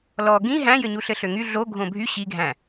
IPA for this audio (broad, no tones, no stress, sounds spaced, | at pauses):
l ɔ ɡ ĩ ɦ æ̃ j ɘ ɲ u ɬ ɘ ɬ ø ŋ y ɮ o ɡʱ õ bʱ y ɕ i ɡʱ æ̃